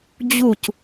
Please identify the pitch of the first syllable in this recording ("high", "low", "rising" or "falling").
falling